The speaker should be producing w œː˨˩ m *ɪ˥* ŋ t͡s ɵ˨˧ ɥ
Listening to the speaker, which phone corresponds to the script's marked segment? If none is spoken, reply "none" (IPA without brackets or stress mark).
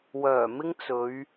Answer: ɪ˥